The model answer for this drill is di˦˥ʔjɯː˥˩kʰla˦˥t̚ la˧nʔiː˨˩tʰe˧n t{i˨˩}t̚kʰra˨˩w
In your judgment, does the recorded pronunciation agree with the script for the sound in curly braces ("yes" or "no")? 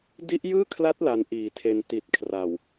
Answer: yes